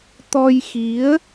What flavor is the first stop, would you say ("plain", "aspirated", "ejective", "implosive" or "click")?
plain